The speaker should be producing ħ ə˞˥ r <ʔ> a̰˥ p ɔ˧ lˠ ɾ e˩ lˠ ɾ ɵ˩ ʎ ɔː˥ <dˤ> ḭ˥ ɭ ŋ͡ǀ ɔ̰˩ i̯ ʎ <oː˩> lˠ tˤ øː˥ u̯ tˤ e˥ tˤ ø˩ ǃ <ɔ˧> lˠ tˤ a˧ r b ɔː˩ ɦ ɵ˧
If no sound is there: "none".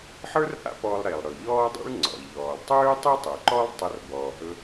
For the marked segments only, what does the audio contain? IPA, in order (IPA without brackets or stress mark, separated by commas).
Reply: ʔ, dˤ, ɔː˩, ɔ˥